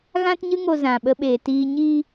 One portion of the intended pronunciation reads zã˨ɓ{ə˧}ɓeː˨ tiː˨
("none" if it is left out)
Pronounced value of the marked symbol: ə˧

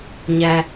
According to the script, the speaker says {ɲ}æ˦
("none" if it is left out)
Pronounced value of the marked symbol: ɲ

